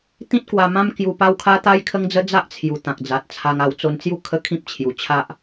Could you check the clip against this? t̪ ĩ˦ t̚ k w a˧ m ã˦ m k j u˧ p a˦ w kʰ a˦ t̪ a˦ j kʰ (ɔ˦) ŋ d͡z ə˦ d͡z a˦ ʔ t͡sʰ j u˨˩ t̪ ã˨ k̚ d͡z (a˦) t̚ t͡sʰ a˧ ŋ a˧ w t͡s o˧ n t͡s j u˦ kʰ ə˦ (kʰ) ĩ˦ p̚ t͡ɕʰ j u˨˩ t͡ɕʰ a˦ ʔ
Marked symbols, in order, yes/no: no, no, yes

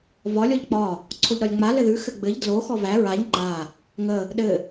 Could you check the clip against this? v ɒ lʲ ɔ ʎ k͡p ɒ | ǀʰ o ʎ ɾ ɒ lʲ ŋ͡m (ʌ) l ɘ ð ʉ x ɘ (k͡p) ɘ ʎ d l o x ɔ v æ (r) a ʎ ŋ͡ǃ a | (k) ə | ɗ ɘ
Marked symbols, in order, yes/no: no, no, no, no

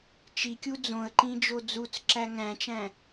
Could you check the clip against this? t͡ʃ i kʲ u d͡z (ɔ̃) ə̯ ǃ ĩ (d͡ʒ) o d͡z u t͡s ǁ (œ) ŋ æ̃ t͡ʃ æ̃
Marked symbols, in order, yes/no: no, yes, no

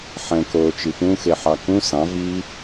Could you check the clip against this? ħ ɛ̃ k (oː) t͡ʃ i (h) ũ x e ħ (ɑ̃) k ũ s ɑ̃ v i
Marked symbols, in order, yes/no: yes, no, no

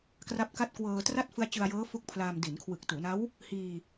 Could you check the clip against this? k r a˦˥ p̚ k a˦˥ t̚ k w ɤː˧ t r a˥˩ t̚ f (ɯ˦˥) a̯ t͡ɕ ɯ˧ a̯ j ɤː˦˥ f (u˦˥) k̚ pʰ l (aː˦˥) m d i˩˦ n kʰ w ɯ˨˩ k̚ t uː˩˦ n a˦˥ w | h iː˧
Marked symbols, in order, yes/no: yes, yes, no

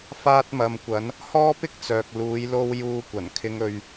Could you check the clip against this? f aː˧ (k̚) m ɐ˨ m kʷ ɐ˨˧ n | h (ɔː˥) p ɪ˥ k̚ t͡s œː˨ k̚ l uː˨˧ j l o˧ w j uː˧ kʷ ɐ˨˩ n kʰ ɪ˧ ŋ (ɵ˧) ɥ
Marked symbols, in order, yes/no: no, yes, yes

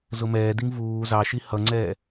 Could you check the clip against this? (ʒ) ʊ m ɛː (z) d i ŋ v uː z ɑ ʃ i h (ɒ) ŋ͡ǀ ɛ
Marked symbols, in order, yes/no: no, no, no

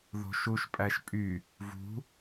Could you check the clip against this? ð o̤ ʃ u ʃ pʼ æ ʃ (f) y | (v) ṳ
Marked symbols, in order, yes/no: no, yes

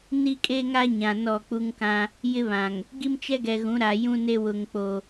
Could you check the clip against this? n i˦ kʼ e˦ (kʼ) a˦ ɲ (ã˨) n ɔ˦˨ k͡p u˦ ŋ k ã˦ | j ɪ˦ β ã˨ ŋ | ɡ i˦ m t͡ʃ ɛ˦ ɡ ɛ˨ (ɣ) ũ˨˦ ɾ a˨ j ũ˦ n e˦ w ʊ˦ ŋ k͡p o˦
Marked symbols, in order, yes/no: no, yes, yes

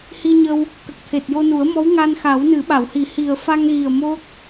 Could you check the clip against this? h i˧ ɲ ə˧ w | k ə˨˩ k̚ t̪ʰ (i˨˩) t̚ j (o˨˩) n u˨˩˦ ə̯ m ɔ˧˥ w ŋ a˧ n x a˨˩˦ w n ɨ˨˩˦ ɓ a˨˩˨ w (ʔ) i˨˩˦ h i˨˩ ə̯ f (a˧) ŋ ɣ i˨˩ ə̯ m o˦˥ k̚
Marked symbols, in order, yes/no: no, no, no, yes

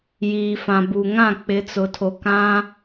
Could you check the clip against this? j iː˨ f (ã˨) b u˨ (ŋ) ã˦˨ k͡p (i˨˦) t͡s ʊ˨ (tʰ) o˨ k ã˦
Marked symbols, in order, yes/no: yes, yes, no, yes

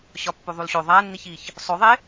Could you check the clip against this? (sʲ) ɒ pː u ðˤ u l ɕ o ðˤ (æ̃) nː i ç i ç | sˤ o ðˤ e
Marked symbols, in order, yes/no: no, no

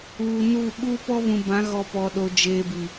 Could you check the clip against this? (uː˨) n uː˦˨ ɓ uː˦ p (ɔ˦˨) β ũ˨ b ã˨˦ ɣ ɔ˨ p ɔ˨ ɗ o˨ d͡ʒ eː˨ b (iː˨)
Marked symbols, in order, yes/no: yes, no, no

